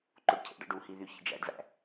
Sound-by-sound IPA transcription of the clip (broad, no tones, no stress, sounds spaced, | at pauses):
ǃ o ɖ cʰ ḛ ɖ ɑ̰ ɖ u h i ð y ç ḭ d͡ʒ æ̰ ɖ v æ̰